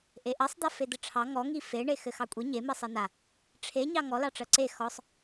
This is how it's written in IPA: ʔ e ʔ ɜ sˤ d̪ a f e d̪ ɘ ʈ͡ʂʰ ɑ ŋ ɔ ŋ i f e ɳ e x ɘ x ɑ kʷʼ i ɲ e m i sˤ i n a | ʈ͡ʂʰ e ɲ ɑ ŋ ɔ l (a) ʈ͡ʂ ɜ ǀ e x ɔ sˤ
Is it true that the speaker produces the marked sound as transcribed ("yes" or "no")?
no